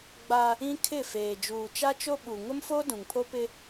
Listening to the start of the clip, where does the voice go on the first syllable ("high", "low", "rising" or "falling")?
high